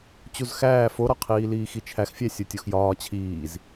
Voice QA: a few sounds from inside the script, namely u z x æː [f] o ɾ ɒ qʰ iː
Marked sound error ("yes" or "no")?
no